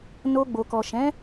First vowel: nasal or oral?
oral